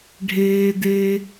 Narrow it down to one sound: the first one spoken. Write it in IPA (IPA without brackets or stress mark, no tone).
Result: ɖʱ